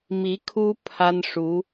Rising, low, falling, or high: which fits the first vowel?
rising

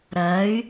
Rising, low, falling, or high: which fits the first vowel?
rising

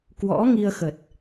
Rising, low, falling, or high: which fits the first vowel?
rising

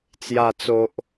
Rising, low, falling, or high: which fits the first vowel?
low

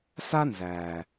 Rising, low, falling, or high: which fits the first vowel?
high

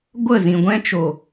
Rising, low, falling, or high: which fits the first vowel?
falling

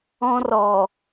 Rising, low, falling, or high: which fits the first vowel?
high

